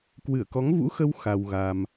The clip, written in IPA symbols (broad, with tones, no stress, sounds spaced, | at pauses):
k w ɨ˧˩ ə̯ k ɔ˨˦ ŋ v ṵ˧˥ x ə˧ w x a˧ w ɣ a˧ m